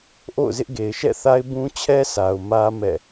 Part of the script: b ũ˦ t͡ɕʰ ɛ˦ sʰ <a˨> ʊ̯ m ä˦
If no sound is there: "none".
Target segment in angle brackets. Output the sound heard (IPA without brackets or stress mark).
a˨